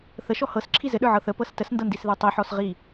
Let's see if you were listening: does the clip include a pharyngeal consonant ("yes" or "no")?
yes